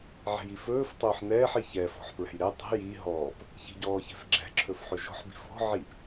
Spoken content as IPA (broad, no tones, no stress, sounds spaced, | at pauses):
ʕ ɛ̤ j i f ɵː f tˤ ɵː ħ n ɛː ħ i ç ɛ f ɔ̤ ħ p ɹ ɛ̤ j ɾ ɛ tˤ ɛ̤ j i ɦ ɔː p | ç i̤ ɟ ɔː ç ɛ̤ f ɡ͡ǁ ɛ̤ ǁʰ ɵ f ħ ɵ ʒ ɔ̤ ħ b i̤ f ɔ̤ ʕ i p